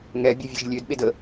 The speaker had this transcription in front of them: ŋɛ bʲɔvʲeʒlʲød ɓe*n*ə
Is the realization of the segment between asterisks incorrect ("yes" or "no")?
yes